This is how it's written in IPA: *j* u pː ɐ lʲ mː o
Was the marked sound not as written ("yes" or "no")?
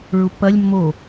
yes